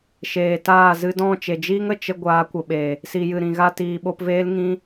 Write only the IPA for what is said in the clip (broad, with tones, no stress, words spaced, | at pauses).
ʃeː˨taː˦˨ zɨ˧dɔ̃˦˨t͡ʃe˨d͡ʒiː˦ŋ ə˨t͡ʃə˧ ɡʷaː˨˦kʷə˨ɓe˨ | si˨jɨ˨ɾĩ˨ɣa˧ tiː˨ɓo˧pveː˦l ŋĩ˦